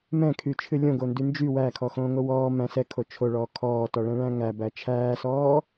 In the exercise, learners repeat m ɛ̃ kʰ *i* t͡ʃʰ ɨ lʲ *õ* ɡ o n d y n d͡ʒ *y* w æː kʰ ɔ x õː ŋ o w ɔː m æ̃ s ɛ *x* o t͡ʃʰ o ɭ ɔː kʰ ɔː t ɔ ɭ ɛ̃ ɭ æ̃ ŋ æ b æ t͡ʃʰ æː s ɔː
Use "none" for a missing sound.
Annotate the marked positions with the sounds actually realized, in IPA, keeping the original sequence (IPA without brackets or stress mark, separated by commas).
y, õ, y, kʰ